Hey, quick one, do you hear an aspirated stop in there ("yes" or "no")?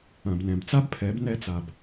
yes